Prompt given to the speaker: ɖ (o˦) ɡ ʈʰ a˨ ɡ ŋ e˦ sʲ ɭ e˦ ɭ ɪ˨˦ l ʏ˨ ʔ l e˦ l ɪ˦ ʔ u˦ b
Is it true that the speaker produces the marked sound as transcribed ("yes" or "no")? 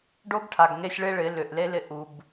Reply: yes